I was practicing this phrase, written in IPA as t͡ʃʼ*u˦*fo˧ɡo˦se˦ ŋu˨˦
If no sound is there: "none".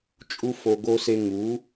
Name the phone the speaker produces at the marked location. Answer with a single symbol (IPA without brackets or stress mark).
u˦